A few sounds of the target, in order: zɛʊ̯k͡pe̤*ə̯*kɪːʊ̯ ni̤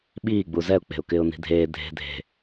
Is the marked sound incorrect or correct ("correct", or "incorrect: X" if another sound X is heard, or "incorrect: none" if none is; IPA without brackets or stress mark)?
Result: incorrect: ʊ̯